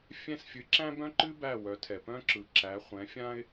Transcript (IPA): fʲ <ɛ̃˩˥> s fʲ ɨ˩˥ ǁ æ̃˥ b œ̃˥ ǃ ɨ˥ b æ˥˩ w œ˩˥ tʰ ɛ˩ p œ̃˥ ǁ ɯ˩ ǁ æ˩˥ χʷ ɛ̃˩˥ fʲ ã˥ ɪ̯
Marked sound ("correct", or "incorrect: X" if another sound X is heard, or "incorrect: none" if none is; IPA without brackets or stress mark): incorrect: ɛ̃˥˩